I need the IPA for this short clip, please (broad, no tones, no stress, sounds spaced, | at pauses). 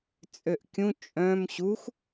t͡sʼ ø ʔ kʲ ũ t͡ʃʼ œ̃ m ɕ u x